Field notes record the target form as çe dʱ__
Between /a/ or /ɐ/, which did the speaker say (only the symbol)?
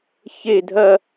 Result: ɐ